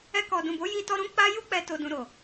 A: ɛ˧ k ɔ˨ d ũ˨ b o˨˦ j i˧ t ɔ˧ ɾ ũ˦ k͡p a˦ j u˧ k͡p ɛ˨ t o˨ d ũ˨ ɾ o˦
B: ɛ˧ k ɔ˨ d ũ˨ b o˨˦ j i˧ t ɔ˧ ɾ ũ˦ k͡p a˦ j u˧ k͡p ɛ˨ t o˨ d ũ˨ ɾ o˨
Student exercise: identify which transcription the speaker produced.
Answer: B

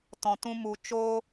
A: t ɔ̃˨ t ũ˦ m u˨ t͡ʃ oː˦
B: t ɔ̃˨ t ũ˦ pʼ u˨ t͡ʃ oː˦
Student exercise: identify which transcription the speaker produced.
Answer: A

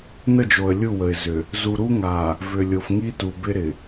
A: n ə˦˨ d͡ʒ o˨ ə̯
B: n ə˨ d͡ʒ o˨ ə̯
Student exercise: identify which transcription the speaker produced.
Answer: A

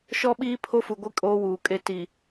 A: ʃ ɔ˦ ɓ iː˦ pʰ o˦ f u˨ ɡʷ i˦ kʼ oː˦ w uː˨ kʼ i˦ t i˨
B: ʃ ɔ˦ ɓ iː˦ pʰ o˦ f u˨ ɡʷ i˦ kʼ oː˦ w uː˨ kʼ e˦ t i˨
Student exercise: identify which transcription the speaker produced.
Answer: B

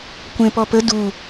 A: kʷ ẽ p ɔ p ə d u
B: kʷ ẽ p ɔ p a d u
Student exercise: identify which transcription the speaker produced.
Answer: A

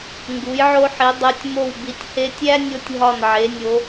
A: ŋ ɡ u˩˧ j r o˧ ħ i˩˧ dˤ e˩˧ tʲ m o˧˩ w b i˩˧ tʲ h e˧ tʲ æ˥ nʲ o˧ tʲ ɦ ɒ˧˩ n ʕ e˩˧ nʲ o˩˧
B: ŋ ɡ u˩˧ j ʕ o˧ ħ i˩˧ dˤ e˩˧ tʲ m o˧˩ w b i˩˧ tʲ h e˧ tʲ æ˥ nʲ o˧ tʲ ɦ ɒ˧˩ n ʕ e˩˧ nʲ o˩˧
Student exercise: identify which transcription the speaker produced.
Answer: B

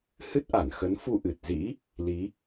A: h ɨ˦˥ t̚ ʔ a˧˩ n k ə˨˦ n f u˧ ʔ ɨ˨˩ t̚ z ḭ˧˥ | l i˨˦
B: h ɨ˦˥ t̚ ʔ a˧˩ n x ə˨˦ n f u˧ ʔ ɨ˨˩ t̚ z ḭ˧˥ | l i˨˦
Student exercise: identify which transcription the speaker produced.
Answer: B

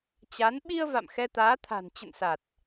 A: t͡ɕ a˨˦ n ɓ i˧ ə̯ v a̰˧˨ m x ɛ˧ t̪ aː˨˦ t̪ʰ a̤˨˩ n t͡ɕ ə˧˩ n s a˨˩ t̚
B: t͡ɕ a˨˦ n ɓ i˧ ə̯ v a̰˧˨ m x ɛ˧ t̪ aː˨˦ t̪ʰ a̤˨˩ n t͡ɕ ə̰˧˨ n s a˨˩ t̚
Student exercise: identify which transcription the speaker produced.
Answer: B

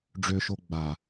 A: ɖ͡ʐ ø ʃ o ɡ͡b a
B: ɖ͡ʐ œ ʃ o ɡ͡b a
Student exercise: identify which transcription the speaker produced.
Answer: A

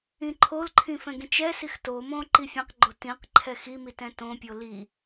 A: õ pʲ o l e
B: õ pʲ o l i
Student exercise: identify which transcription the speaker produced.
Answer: B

